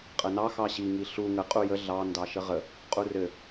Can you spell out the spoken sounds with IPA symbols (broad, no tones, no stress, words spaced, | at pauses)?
qʼənɑ xɑɕi ŋiɬu ŋə qʼujə ɮɑ ndɑʃəʁə | qʼurɘ